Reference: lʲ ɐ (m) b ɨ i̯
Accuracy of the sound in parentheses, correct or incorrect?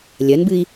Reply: incorrect